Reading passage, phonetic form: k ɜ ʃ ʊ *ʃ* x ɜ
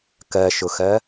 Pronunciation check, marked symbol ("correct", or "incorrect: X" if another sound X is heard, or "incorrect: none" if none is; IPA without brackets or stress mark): incorrect: none